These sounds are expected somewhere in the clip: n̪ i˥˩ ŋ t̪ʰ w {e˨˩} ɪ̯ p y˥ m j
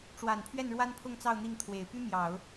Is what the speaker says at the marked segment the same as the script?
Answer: yes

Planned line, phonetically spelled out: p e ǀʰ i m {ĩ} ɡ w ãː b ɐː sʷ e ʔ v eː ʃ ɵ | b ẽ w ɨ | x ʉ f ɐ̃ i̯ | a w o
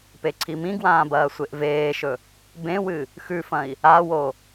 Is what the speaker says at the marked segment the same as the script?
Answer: yes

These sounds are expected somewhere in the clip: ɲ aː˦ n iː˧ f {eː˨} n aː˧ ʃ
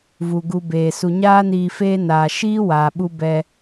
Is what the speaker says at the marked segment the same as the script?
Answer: no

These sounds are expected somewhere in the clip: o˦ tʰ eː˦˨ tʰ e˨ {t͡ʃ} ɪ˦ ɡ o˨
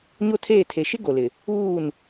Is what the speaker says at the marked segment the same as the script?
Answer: no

